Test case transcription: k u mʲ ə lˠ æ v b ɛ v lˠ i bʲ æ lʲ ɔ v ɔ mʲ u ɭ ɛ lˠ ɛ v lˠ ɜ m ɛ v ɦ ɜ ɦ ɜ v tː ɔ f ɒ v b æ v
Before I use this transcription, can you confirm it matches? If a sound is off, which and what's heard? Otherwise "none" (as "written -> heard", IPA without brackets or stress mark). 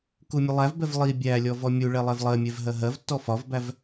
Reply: m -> mʲ